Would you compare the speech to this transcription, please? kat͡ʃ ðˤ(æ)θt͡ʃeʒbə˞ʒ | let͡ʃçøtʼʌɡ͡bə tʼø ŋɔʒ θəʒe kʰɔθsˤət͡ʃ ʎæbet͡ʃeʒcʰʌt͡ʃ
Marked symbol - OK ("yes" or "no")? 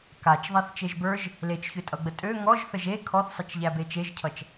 yes